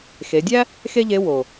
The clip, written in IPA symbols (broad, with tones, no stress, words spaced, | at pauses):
xe˩˧dʲæ˥ | xe˥ʎe˧˥ wo˩